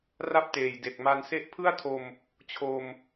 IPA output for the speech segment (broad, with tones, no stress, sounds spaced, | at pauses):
r a˥˩ p̚ t eː˨˩ j d e˨˩ k̚ m a˧ n s e˦˥ ʔ pʰ ɯ˥˩ a̯ tʰ o˧ m | t͡ɕʰ o˧ m